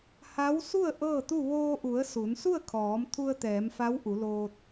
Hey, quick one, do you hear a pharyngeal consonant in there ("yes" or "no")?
no